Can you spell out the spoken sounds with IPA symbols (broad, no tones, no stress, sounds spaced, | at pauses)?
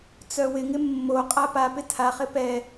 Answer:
t͡s œ w ɪ ŋ ɪ mː o qʼ a p a p ɪ tʰ a χ ɪ p ɛ